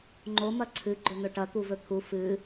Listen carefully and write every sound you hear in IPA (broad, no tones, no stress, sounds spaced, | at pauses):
ŋ͡ǃ o m ɐ ǀʰ ɨ ɡ͡ǃ ɵ n̪ ɵ ʈ ɐ t̪ u v ɵ t̪ʰ u f ɨ